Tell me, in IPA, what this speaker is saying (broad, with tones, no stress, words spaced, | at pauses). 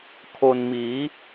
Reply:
kʰo˧n miː˩˦